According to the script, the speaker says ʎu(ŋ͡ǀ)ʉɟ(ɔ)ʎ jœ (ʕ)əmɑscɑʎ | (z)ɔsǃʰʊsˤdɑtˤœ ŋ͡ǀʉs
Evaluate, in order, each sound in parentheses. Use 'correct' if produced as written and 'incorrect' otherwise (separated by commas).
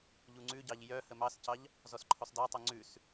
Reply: correct, incorrect, incorrect, correct